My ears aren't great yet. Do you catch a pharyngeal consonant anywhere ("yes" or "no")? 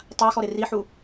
yes